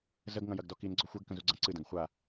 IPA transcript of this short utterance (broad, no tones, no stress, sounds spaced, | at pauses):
z ə ɡ ŋ ɐ̃ j ɐ ɡ d ɔ k i n ɡ͡ǀ ɔ xʷ ɛ ɡ k ə̃ z u ɡ͡ǀ ɐ̃ ǀ ɨ d ɐ̃ ɡ χʷ a